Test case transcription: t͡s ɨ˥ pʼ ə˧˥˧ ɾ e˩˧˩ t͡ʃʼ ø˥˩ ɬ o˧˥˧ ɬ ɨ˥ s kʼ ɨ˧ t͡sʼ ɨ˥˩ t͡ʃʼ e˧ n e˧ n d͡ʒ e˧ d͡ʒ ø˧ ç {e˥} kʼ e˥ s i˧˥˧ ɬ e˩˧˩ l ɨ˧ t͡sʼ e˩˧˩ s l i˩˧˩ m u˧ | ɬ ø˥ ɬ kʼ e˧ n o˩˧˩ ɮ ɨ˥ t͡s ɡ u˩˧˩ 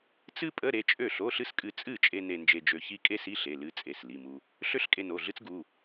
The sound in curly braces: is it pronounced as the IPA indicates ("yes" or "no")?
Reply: no